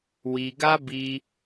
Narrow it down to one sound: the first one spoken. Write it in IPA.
w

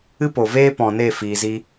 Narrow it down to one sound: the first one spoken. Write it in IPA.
ɨ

